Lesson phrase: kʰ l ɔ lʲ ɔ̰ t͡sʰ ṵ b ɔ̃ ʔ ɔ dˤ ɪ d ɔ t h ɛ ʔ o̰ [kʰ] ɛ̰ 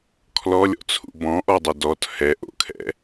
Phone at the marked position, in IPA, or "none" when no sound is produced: kʰ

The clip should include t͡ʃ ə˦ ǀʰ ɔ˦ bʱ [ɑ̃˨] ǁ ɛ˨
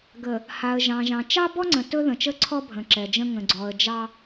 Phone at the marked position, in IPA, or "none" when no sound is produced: ə̃˨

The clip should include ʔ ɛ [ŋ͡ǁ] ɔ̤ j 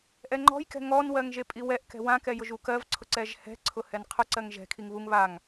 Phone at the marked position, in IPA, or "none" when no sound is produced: ŋ͡ǃ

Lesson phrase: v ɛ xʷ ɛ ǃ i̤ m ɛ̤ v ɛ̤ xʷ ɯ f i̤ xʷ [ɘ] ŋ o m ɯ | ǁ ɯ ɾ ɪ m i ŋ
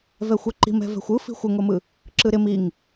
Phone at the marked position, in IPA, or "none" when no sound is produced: ɘ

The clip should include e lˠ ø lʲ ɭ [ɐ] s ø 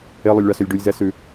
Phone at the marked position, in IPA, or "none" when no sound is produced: ɑ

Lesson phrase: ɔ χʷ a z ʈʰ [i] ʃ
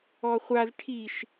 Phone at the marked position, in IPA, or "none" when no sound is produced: i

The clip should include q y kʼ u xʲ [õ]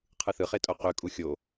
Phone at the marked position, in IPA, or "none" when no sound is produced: o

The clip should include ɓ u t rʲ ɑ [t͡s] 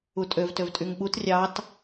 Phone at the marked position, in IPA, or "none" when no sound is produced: t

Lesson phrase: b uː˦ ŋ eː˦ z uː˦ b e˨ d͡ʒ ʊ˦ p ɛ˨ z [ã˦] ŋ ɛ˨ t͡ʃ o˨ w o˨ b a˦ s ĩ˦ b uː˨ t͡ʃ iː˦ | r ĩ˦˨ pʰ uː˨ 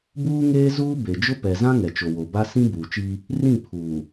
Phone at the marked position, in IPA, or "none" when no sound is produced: ã˦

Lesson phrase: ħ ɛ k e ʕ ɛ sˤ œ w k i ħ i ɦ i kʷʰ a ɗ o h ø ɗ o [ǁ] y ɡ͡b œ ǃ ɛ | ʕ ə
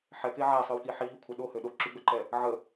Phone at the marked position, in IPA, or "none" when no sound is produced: ǁ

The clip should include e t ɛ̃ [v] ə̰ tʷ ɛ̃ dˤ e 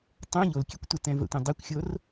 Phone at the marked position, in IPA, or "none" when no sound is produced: v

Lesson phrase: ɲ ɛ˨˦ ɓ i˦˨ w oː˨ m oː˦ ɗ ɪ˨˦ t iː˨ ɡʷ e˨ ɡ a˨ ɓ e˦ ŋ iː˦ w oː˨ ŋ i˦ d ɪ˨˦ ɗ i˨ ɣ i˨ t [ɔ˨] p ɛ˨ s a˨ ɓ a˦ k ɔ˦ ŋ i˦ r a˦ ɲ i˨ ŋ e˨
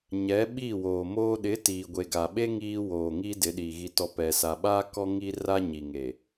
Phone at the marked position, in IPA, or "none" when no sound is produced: ɔ˨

